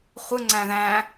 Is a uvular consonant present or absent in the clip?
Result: present